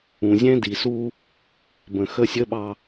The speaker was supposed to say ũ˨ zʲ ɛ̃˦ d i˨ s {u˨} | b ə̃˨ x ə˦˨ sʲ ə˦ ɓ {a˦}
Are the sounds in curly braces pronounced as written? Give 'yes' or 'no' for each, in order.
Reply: no, no

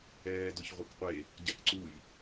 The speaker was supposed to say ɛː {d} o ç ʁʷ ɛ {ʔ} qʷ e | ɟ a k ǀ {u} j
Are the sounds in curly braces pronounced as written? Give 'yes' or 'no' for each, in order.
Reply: yes, no, yes

